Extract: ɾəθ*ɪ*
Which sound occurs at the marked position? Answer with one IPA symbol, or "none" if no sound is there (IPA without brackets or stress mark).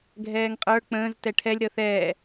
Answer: ɛ